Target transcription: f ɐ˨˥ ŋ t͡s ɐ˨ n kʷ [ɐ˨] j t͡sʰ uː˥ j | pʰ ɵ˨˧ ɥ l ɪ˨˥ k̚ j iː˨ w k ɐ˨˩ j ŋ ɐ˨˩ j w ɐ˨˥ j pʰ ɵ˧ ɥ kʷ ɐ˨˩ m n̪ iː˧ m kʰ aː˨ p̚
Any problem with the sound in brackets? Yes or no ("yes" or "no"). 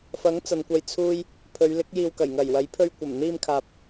yes